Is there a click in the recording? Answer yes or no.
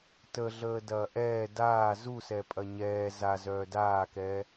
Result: no